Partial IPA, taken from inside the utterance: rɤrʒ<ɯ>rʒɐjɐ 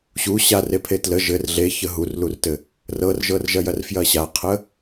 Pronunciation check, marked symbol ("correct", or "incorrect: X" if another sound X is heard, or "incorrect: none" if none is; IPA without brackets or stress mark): incorrect: ɤ